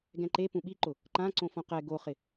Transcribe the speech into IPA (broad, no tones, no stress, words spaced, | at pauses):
ɡɛ̃ǃe pũɓiǃʊ | ǃãǀõ fõqɛ ɡoχɪ